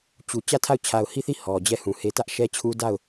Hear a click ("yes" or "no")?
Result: no